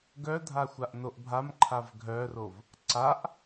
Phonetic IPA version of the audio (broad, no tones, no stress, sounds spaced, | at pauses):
ɡ œ dʱ a xʷ a ʔ n o ʔ bʱ a m ǃʰ a v ɡʱ œ r o v | ǀ a ʔ